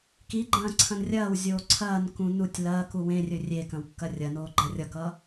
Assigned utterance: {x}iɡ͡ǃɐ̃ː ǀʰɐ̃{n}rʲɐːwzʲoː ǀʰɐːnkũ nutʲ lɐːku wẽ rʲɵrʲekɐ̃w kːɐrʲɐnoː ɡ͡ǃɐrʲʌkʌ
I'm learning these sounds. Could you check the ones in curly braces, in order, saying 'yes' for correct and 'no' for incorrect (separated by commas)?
no, yes